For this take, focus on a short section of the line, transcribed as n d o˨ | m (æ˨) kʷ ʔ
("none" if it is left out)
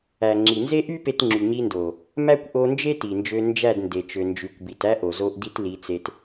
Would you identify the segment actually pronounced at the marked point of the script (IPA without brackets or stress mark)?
æ˦